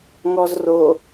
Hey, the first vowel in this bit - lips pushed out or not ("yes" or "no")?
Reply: yes